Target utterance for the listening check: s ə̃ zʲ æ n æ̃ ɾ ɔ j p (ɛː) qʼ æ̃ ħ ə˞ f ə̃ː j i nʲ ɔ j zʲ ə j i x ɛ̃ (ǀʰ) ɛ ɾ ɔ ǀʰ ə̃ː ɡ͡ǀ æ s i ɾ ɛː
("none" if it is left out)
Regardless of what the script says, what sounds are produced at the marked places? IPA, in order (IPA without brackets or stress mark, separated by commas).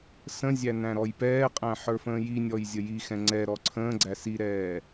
ɛː, ŋ͡ǀ